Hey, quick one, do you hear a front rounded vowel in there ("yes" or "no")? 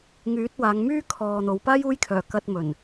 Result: yes